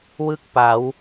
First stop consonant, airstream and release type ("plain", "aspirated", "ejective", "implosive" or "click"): plain